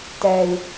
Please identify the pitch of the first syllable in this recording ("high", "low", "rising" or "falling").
low